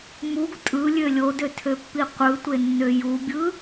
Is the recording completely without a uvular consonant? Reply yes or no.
no